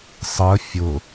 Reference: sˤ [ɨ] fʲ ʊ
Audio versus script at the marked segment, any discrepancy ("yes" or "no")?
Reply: yes